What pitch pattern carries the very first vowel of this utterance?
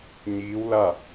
rising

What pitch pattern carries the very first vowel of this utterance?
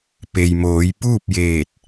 low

